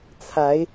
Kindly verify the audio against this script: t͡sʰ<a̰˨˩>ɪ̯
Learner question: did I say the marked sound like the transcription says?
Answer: no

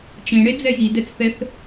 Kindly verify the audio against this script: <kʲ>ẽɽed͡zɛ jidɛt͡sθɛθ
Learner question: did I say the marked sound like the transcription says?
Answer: no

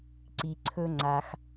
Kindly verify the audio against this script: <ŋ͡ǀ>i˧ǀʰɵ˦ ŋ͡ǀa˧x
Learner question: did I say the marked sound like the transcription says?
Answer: no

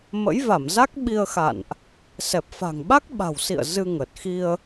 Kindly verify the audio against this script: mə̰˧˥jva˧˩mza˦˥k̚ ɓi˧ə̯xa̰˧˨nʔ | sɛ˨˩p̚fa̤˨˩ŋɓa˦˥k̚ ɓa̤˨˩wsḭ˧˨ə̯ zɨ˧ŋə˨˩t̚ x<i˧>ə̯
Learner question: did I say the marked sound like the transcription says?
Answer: yes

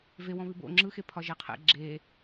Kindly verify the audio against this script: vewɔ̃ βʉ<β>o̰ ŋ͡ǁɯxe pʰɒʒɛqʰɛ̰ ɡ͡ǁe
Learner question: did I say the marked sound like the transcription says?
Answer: no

